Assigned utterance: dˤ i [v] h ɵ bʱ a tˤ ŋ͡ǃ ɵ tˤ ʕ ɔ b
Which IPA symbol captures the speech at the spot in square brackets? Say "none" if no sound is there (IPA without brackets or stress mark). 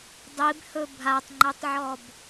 b